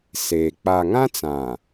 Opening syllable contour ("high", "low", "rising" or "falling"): low